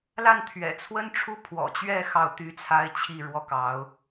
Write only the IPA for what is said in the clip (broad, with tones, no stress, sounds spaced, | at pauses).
l a˥˩ n t̪ʰ ɥ ɛ̰˨˩ t͡sʰ w ə˥ n ʈ͡ʂʰ u˥ pʰ w ɔ̰˨˩ t͡ɕ ɥ ɛ˥˧ x ɑ˥˩ ʊ̯ t̪ y˥ t͡sʰ a˥ ɪ̯ t͡ɕʰ i˥˧ ɻ w ɔ˥˩ k ɑ˧˥ ʊ̯